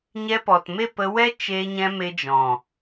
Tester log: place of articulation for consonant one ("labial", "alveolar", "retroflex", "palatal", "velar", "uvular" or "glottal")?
palatal